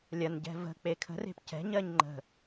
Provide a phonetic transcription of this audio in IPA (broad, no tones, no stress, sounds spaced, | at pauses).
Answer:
lʲ ɐ n ɟ ɛ̤ v ə̤ k͡p e kʰ ə̤ r e̤ p c ɛ̤ ɲ ɜ ɲ ŋ͡ǃ ə̤